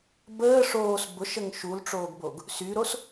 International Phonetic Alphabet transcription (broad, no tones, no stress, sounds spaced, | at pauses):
b əː ʂ oː s b ʊ ʃ ə ŋ ʃ u l ʈ͡ʂ oː ɡ b o ɡ | s y ɾ o s